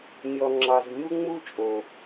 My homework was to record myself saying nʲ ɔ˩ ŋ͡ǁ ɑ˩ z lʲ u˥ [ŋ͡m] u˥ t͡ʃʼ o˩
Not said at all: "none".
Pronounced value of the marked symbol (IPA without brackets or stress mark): ŋ͡m